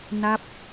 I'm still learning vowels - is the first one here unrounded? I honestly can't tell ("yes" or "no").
yes